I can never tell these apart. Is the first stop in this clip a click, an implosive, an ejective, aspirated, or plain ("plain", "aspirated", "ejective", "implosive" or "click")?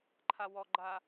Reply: click